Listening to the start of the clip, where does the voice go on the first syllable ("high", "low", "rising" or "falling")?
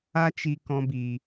high